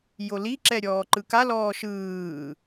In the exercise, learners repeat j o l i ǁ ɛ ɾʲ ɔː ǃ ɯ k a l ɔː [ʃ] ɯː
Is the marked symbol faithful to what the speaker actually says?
yes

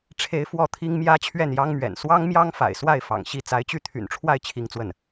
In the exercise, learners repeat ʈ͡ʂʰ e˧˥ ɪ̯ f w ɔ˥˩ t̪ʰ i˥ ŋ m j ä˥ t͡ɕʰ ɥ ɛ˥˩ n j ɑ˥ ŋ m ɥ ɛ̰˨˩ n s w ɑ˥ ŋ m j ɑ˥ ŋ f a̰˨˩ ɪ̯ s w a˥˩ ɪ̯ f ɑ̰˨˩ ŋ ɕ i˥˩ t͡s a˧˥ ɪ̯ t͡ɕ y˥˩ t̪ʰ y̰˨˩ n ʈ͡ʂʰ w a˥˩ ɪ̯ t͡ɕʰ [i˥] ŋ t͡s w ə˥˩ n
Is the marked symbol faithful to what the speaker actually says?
yes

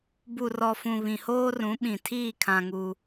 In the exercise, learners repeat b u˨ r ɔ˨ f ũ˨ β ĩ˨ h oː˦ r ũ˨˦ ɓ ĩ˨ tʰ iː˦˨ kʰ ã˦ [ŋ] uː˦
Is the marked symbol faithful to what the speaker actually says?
yes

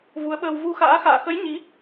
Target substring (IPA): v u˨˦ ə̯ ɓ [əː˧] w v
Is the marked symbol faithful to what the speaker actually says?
yes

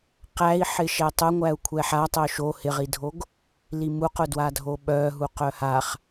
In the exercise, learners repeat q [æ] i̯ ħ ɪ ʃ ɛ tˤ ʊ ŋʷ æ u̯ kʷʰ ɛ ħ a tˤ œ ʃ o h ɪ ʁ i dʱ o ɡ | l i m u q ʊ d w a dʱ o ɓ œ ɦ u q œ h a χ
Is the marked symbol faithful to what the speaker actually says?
yes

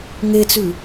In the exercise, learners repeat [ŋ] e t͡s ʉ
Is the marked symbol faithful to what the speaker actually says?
yes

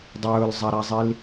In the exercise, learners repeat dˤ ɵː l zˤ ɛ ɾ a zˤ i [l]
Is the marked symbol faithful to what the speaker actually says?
yes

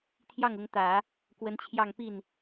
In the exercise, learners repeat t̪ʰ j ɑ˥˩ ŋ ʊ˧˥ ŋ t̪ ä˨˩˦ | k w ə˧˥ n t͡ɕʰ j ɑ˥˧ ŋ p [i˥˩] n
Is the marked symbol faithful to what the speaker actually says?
yes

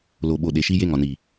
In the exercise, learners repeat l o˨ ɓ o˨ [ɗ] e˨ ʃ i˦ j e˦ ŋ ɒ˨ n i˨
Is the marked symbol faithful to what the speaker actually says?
yes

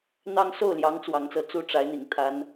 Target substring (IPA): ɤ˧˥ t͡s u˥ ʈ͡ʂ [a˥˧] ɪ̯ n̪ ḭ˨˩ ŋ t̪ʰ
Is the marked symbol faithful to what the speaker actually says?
no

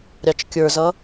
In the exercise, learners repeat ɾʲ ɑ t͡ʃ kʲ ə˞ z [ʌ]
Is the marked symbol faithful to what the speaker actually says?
yes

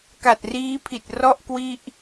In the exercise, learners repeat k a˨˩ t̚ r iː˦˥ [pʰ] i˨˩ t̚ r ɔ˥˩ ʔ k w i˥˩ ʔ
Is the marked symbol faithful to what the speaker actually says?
yes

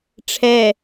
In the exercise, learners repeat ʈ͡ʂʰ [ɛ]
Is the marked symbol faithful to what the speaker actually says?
yes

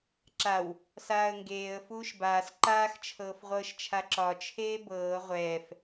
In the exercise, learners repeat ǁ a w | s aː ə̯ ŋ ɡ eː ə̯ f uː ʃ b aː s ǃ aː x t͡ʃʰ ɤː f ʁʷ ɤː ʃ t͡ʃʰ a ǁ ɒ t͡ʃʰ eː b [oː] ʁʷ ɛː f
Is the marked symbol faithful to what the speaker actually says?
no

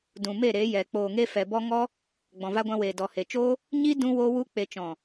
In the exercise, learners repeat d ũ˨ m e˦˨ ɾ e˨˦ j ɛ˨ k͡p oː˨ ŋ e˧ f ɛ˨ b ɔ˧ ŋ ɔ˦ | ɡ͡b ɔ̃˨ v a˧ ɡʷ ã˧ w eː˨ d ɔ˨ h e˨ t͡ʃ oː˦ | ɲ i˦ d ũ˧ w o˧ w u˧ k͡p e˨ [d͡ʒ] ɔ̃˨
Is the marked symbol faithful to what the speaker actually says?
no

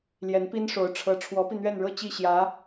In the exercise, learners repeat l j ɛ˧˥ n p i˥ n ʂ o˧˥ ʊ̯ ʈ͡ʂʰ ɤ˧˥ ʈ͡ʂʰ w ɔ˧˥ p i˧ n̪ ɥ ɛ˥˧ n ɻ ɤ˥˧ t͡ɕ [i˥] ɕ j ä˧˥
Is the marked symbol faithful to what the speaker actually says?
no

